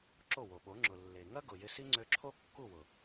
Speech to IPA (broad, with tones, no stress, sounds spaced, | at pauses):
ǁ o˦˨ w o˨ ɓ o˨˦ ŋ͡ǁ ʊ˨ lː e˨ ŋ ɐ˦ ɡ ʊ˨ j ɪ˧ s i˦ ŋ͡ǀ ø˧ ǁʰ o˦ kː u˦˨ w ʊ˨